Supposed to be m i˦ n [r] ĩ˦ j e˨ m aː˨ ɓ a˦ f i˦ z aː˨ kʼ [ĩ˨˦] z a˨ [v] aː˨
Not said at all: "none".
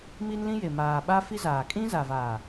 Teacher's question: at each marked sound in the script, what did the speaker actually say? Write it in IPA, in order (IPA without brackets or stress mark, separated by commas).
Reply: l, ĩ˦, v